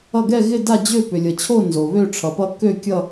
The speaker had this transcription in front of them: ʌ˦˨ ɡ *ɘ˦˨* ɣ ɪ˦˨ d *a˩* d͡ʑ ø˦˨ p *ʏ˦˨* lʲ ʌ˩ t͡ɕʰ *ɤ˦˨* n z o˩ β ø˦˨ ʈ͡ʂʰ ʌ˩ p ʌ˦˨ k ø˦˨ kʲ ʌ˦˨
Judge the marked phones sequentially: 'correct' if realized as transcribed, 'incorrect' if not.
incorrect, incorrect, incorrect, incorrect

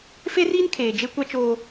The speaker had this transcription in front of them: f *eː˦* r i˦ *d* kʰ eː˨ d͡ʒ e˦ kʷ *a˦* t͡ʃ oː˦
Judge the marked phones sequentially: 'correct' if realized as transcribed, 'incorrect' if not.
incorrect, incorrect, correct

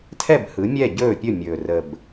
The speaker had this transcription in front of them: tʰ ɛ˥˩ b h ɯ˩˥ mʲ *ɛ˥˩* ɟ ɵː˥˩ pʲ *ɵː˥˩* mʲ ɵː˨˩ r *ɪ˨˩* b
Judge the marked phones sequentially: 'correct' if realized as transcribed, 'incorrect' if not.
correct, incorrect, incorrect

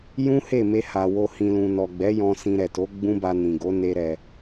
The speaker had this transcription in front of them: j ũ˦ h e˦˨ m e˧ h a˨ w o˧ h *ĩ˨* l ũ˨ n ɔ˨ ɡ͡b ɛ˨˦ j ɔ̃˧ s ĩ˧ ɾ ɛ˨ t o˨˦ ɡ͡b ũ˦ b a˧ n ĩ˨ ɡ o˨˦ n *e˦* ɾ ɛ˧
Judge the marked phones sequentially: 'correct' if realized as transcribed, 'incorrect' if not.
correct, correct

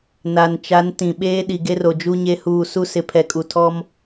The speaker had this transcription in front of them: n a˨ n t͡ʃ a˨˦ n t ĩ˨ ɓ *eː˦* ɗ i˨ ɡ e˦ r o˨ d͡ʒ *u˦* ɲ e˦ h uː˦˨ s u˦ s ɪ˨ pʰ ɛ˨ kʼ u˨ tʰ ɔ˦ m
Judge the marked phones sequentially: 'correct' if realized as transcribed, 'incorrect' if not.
correct, correct

